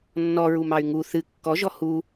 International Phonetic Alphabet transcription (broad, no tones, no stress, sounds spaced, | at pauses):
nː ɔ ɹ u m ɑ y̯ ŋ u θ ɨ kː ɔ ʒ ɔ h u